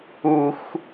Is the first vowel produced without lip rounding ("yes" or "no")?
no